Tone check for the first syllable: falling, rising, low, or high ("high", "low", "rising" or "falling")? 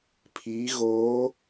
rising